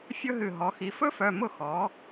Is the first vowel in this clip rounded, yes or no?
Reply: yes